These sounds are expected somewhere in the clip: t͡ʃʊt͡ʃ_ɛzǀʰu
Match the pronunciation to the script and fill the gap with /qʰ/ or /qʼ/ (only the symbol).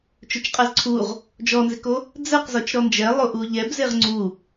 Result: qʼ